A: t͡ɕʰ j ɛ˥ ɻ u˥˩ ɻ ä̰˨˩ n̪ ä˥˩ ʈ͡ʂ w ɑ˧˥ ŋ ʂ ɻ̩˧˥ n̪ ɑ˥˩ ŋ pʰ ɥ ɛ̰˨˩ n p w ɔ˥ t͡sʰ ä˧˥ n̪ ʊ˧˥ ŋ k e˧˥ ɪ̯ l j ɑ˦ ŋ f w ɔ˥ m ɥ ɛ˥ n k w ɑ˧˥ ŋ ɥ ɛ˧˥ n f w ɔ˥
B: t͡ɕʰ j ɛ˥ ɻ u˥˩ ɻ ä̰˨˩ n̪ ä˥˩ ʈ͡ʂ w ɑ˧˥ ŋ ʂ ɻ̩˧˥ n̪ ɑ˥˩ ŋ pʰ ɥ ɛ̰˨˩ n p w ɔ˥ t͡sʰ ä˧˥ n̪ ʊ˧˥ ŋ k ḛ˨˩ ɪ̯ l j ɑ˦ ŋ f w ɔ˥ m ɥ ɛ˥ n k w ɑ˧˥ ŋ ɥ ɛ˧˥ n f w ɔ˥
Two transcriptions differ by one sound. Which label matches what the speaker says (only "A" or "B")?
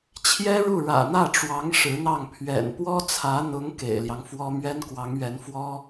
B